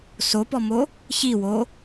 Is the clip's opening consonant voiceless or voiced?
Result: voiceless